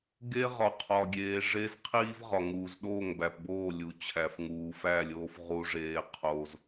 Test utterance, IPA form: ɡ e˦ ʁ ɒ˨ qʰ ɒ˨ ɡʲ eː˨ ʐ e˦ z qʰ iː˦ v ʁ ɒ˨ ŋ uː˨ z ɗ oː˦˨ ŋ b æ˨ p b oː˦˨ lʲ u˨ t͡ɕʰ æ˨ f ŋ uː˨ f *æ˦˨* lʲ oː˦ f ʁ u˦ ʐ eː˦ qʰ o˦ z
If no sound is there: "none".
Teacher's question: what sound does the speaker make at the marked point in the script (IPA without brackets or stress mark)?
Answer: æ˦˨